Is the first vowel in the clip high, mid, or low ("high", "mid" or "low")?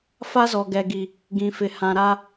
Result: low